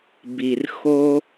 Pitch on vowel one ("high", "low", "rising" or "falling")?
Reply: low